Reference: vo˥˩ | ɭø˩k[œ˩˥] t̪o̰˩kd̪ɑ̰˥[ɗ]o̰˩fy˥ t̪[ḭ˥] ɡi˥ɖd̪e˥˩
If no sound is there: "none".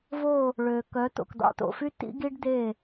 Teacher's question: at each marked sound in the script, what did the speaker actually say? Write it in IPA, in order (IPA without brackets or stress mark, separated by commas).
œ˩˥, t̪, ḭ˥